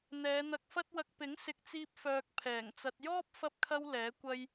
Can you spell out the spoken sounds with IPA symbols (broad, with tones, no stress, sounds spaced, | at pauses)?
n̪ ɛː˨˧ n̪ ɐ˧ k̚ f ɐ˥ t̚ w ɐ˧ k̚ p ɪ˨˥ ŋ s ɪ˨˥ k̚ t͡s iː˧ p̚ f œː˧ k̚ pʰ ɛː˨˩ ŋ t͡s ɐ˧ t̚ j ɔː˥ p̚ f ɐ˧ p̚ kʰ ɐ˧ w l ɛː˨˥ kʷ ɐ˥ j